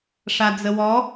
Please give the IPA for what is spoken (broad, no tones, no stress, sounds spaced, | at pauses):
ʂ a d͡z ə w ɔ